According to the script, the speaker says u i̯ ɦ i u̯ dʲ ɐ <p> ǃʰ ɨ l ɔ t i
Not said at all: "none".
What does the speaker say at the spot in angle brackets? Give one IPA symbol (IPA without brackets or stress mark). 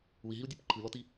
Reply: p